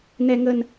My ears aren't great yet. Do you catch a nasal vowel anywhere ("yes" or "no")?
no